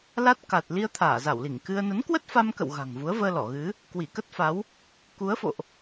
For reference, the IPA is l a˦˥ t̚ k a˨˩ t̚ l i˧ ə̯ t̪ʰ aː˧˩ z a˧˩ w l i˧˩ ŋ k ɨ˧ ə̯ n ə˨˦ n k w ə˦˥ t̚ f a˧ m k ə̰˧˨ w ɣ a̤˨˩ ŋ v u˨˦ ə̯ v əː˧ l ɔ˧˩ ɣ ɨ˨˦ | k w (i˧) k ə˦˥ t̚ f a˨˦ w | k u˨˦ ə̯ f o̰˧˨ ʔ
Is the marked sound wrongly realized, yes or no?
yes